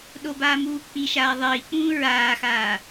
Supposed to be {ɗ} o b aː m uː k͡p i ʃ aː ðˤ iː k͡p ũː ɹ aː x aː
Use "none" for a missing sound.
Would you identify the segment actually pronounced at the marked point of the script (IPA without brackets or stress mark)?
ɗ